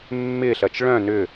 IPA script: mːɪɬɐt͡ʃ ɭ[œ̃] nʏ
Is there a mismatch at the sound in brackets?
no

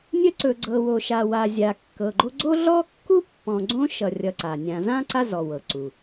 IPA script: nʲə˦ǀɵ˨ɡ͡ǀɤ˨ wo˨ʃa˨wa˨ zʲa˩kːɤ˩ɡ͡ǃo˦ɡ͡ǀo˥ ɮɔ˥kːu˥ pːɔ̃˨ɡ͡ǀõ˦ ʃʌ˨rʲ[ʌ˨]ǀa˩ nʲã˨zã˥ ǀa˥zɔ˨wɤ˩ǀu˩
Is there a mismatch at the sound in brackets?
no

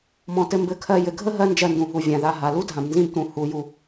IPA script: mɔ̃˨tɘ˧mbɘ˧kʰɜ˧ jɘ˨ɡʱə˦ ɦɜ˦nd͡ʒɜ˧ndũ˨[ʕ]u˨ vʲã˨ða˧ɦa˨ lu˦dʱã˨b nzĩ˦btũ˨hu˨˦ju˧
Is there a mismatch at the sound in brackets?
yes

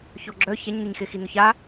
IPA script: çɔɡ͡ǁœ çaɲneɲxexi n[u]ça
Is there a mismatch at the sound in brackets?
yes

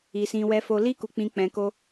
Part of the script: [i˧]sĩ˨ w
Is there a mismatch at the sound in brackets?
yes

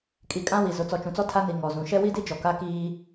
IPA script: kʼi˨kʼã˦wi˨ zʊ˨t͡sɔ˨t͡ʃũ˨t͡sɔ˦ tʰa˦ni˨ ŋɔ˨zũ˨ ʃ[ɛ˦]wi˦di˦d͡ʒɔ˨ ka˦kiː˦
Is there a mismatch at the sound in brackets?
no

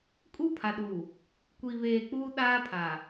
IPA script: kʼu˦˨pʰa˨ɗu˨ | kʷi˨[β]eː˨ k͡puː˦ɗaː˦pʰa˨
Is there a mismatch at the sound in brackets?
no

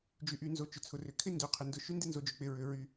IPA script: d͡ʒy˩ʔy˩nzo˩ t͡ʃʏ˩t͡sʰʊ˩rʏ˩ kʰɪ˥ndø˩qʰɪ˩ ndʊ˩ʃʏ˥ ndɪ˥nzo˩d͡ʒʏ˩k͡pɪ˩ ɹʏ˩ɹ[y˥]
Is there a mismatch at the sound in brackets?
yes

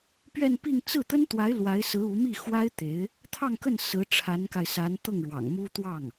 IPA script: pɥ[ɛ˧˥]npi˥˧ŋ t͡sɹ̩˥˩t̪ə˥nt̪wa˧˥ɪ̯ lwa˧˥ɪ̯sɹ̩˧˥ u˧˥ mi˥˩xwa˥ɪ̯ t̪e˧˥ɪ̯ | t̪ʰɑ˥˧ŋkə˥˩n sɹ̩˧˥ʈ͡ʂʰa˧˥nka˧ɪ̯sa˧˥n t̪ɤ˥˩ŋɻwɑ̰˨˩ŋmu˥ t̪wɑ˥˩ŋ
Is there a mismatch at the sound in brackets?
yes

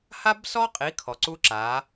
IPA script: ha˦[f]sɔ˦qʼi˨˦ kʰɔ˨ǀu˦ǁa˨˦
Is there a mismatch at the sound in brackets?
yes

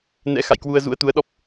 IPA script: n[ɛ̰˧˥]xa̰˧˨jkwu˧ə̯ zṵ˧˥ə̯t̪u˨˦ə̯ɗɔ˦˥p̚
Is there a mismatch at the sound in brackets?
no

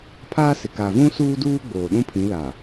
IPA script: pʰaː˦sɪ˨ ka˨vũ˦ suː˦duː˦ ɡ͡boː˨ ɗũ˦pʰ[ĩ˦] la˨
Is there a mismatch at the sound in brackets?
yes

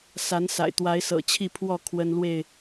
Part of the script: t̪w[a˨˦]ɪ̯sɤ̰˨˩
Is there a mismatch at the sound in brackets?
no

